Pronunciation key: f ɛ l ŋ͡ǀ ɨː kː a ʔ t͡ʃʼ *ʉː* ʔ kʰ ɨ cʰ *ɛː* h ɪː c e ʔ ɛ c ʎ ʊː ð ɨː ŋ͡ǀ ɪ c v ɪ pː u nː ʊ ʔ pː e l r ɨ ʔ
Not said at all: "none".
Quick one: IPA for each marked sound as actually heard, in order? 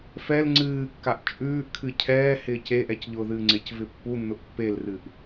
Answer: ʉː, ɛː

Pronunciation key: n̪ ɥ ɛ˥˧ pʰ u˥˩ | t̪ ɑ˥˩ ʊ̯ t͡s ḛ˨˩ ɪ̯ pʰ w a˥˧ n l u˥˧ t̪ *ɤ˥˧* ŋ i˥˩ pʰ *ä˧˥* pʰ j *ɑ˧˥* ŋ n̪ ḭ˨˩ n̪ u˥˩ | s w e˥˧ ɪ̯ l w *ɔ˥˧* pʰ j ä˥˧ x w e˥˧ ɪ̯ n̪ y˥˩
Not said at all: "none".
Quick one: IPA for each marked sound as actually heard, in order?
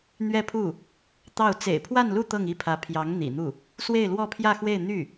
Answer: ɤ˥˧, ä˧˥, ɑ˧˥, ɔ˥˧

